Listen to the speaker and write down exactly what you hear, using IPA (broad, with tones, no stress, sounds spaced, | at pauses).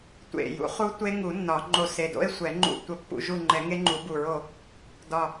tʷ ḛ˨˩ j ṵ˨˩˦ χ u˦˥ tʷ e˦˥ ŋ u˨˩˦ nː ɒ˨˩˦ ŋ͡ǃ o˦˨ s e˨˩ d o̰˦˥ e̯ sʷ ɛ˨˩˦ ŋ͡ǃ ṵ˦˨ tʷ ə˦˨ pː ṵ˦˨ ʒ u˦˨ ŋ͡ǃ ɛ˨˩˦ ŋ e˦˥ ŋ͡ǃ u˨˩˦ b u˨˩ ɹ o˦˨ | d ɒ˨˩